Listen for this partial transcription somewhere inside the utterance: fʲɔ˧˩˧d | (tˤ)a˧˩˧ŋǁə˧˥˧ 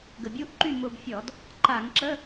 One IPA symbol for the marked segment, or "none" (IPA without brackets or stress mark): ǃ